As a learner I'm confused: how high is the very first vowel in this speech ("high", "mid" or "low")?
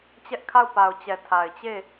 mid